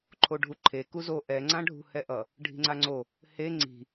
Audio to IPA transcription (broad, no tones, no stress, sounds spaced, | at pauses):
ǃʰ o ɖʱ u ǃʰ e k u z o ʔ ɛ ŋ͡ǀ ã ɖʱ ṳ h ɛ ʔ ʌ | ɖʱ i̤ ŋ͡ǀ a ŋ͡ǀ o | h e ŋ͡ǀ i̤